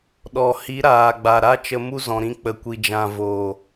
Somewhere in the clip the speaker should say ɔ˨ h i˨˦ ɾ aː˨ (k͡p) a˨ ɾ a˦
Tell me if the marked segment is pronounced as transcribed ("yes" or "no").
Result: no